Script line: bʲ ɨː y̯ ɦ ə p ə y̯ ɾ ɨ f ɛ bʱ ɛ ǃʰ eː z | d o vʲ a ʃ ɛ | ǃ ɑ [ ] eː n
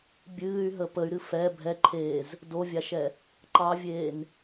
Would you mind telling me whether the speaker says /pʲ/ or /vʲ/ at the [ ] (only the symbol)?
vʲ